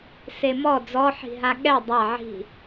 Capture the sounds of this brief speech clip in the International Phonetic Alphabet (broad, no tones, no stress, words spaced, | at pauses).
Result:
semɔ d͡zɔħi̤ɦa ɠɛ dˤa ʕi̤